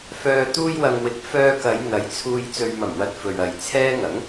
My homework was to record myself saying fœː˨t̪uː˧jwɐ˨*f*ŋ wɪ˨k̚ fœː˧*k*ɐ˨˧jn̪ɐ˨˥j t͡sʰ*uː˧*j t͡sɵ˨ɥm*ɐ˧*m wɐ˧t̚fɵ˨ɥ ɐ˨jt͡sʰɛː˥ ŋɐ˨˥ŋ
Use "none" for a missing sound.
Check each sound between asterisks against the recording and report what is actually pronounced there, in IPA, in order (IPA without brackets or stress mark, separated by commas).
none, k, uː˨, ɐ˨˩